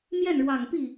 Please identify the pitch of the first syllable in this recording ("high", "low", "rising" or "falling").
falling